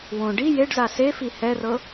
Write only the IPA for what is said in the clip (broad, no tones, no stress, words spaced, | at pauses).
wõ ɖi jeɖza sefi hɛrɤ